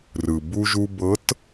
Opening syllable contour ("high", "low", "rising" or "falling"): low